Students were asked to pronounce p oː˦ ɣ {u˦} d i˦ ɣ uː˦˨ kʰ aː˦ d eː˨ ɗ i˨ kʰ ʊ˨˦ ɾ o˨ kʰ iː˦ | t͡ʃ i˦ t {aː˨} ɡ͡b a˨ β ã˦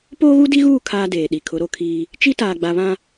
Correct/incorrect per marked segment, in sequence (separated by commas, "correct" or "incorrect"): correct, correct